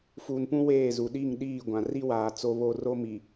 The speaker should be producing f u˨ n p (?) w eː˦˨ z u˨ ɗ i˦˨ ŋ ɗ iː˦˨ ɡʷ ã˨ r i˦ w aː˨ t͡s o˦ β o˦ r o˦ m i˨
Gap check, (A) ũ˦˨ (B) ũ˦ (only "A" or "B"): B